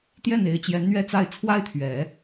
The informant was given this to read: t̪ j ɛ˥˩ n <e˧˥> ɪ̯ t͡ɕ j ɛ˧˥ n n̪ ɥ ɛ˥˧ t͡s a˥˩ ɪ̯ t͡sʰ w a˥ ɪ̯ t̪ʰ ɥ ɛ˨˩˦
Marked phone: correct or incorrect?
correct